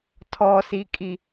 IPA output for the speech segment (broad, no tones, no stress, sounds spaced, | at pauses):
tʰ ɔ s i kʼ i